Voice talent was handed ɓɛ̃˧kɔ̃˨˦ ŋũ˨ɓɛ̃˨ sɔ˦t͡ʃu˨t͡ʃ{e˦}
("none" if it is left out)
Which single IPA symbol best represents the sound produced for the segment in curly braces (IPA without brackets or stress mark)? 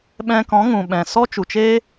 eː˦